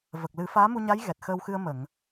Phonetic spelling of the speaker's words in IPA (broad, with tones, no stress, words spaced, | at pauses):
və˨˩k̚lɨ˨˩˦ faː˧˥mu˧ɲa˧˥j ɣɛ˨˩t̚xəː˧wxɨ˧ə̯ mə˨˩˨ŋ